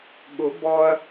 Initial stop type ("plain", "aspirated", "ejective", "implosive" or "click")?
implosive